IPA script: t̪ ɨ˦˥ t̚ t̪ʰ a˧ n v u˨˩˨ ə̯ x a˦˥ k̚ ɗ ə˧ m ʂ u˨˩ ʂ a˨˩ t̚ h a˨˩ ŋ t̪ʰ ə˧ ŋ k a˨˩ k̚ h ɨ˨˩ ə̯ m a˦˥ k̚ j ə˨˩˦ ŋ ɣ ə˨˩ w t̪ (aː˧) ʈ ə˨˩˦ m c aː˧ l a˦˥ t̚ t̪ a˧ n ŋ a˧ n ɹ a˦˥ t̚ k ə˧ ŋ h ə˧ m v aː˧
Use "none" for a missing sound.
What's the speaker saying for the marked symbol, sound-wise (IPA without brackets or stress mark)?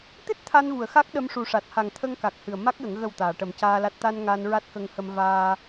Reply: aː˨˩˨